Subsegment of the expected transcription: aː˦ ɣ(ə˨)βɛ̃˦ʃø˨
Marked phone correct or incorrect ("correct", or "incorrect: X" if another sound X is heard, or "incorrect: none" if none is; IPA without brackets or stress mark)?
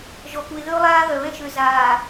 incorrect: œ˨